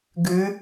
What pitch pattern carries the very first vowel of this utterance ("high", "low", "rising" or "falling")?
rising